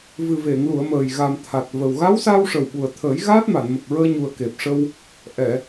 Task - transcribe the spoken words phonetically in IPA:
vɨ˨˩ve˨˩˨ŋlu˨˩˨ə̯ məː˨˩j ɣa˨˩mt̪ʰa˨˩t̚və˨˩w ɣa˧˥w saː˧wʂə˨˩wɓu˨˩ə̯t̪ʰəː˨˩˦j ɣaː˦˥t̚ma˨˩˨nmə˨˩k̚ ɹəː˧ɲu˨˩ə̯ke˨˩p̚ʂə˧w | ʔɛ˨˩˨

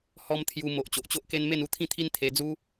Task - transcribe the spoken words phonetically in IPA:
hɔ˦m t̪ʰju˧ mo˨ʔ t͡ɕo˨ʔt͡ɕo˦ʔke˦n me˥˧nu˥˧t̪ʰĩ˥˧t̪ʰi˦n t̪ʰe˧d͡zu˦

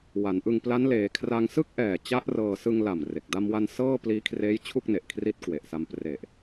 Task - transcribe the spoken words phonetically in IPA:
wa˩˦nʔɯ˧ŋpla˦˥n leː˩˦kʰra˧ŋ sɯ˥˩k̚ʔɛː˨˩ t͡ɕa˦˥ʔ rɤː˧ sɯ˧ŋla˨˩m re˨˩k̚ da˧mwa˧n sɤː˥˩pliː˦˥kʰreː˦˥jt͡ɕʰu˥˩k̚ ne˨˩ʔ kʰri˦˥t̚kwe˨˩ʔ sa˧mpre˨˩ʔ

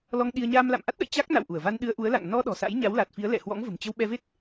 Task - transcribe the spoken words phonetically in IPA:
lɔ˧ŋ ɗi˧ə̯ ɲaː˧mla̰˧˨mʔa˦˥t̚ɗə̰˧˨j t͡ɕa˦˥k̚na̰˧˨wʔu˧˩ə̯va˧n ɗɨ˧ə̯ʔu˨˦ə̯la̰˧˨ŋ nɔ˧ ɗɔ̤˨˩sa̰˧˥j ɲa˨˦wla˨˩t̚fi˨˦ə̯ lɛ̰˧˨hwɔ̰˧˥ŋ və̤˨˩mt͡ɕə˧wɓɛ˧ve˦˥t̚

